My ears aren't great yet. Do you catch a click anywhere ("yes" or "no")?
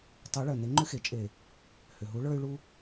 yes